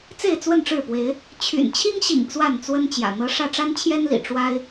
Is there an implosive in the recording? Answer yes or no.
no